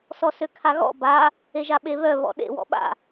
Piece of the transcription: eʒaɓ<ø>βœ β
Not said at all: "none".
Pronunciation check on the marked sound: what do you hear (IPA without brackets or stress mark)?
e